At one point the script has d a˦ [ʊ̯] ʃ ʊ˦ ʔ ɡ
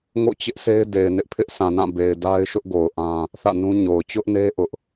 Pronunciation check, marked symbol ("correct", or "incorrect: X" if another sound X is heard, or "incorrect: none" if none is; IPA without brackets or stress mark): incorrect: ɪ̯